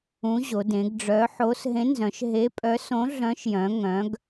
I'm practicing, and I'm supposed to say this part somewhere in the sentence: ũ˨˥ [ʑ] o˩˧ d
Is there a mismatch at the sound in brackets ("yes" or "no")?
no